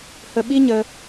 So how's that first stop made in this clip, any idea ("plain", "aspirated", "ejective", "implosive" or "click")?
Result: implosive